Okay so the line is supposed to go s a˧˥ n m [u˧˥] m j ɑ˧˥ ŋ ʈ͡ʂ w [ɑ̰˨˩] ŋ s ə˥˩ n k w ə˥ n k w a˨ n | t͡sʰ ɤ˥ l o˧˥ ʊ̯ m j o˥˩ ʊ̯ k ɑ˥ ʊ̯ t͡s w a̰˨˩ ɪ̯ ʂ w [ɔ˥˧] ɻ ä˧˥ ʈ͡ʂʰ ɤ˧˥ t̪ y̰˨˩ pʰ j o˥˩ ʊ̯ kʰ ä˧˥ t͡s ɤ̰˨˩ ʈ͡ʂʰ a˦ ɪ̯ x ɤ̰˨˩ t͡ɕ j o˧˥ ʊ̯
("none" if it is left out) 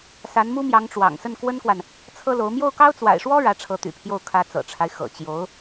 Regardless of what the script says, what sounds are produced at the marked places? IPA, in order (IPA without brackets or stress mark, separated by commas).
u˥, ɑ̰˨˩, ɔ˥